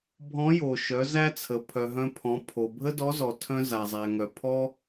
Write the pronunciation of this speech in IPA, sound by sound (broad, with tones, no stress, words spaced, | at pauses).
bʱɔ̃˧˥jo˩ʃœ˩˧ zæ˥t͡sʰə˩˧ pʰœ˩ɦœ̃˧pʰɔ̃˩˧ pʰo˩ bʱə˥dɔ˧˥zɔ˩ tʰœ̃˧ za˩zˤæ˩ŋœ˩ pʰɔ˥